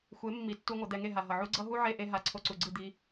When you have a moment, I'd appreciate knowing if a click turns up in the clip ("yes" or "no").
yes